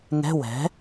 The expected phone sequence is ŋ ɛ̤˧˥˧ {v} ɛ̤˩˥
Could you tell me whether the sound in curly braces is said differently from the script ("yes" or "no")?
yes